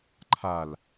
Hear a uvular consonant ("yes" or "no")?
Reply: no